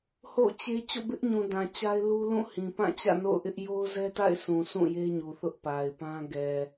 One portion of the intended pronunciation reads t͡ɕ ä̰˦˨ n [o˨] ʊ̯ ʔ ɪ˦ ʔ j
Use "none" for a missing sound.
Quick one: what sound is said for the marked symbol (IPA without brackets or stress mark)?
o̰˦˨